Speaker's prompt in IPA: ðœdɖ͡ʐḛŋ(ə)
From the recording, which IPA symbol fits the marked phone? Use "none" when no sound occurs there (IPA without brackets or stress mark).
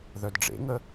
ə